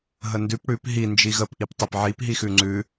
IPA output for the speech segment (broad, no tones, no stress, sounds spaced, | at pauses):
ɦ ə n d ʉ p ɽ ʉ p ɦ i n d͡ʒ i ɣ ə p ʔ i p tˤ e p ʕ i p ɦ i x ʉ ŋ͡ǀ ʉ